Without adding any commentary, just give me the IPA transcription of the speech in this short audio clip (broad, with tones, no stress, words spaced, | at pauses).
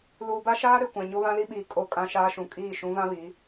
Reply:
luː˨ba˦ʃaː˦ ɾe˨kʷã˨ ɲo˦βã˦li˦ɓiː˨ kʼo˦˨ kʼã˦ʃaː˦ʃũ˨ kʼiː˦˨ ʃũ˨˦vã˦ βiː˨˦